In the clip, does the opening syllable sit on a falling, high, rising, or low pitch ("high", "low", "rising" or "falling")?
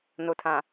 low